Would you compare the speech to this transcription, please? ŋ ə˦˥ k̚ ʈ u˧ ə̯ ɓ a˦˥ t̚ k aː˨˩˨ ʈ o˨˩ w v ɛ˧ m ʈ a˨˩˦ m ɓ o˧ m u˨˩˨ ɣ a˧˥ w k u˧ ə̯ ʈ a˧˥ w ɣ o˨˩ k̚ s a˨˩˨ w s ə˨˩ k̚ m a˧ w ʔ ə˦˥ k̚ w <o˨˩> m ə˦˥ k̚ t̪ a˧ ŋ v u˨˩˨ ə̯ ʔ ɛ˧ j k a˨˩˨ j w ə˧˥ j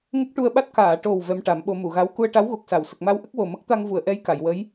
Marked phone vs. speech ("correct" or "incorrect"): correct